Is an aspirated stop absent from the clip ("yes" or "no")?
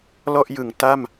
yes